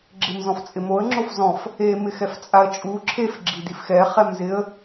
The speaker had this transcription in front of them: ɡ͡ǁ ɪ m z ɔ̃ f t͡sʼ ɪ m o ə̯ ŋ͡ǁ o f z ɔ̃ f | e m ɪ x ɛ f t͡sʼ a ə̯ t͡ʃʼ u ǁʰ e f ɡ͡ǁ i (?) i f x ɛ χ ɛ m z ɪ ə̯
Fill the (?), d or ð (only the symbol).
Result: d